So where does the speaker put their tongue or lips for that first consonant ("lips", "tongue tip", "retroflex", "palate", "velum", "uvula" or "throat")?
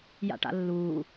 palate